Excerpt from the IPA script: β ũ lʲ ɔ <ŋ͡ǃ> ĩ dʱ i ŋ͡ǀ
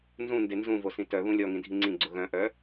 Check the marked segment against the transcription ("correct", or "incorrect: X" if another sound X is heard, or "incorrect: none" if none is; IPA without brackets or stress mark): incorrect: ŋ